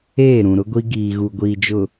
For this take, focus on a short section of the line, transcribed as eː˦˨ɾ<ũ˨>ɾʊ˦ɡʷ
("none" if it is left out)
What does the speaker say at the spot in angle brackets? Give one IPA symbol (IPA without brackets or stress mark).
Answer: ũ˨